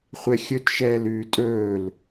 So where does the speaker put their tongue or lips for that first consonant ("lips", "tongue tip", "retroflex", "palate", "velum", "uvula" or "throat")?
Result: uvula